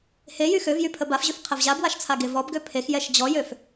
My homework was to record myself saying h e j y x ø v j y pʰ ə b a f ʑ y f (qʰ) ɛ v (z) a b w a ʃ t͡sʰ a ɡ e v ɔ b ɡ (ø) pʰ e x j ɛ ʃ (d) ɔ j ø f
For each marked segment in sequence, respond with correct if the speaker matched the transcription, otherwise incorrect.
correct, incorrect: ʑ, correct, incorrect: d͡ʑ

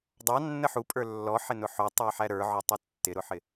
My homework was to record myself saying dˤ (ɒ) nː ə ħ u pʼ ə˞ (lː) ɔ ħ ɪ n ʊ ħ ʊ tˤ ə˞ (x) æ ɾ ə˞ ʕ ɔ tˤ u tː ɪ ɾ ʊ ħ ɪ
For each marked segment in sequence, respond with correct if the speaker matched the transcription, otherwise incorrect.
incorrect: ɑ, correct, incorrect: ħ

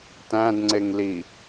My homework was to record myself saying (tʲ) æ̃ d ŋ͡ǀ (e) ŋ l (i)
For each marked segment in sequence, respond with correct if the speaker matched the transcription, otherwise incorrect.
incorrect: t, correct, correct

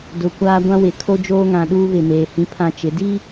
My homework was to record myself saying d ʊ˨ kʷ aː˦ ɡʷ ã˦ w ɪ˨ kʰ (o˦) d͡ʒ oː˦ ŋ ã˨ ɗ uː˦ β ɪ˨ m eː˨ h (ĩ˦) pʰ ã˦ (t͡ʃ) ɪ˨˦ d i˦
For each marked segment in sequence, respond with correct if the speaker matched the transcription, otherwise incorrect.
correct, correct, correct

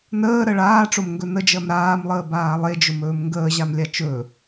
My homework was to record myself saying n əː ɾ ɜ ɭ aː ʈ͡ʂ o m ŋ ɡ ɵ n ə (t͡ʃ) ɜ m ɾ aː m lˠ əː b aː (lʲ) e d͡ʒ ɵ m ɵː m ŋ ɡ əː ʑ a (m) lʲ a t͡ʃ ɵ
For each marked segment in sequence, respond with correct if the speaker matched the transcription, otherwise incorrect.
incorrect: d͡ʒ, incorrect: lˠ, correct

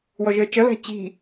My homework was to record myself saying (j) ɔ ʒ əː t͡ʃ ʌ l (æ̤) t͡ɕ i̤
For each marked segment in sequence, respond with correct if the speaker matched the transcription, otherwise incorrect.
incorrect: w, correct

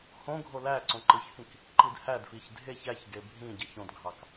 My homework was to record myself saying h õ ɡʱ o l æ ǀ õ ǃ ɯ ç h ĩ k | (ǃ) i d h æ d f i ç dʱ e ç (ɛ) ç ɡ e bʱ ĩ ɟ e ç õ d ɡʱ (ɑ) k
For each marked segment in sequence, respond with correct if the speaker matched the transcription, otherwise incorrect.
correct, incorrect: æ, correct

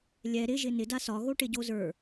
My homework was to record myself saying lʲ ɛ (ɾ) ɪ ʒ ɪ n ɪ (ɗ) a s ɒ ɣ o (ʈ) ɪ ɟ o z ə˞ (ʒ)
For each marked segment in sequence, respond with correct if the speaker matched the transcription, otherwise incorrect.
correct, incorrect: d, correct, incorrect: none

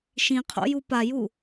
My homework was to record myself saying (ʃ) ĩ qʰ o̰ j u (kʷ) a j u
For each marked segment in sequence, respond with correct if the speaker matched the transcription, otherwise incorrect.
correct, incorrect: p

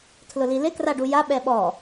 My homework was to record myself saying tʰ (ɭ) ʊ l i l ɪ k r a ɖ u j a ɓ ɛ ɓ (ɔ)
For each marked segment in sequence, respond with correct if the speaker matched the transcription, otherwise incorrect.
incorrect: l, correct

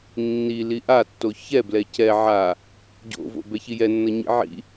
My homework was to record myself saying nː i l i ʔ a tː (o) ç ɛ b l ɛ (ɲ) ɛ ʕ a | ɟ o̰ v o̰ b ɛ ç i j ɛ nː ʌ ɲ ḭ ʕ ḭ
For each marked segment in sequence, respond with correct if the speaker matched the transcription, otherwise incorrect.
correct, incorrect: c

